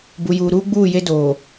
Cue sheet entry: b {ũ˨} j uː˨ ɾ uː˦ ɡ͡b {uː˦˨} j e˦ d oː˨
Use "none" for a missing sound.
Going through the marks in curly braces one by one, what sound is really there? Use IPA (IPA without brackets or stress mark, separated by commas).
u˨, uː˦˨